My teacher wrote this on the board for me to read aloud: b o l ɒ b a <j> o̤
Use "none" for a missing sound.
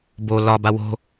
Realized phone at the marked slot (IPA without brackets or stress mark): w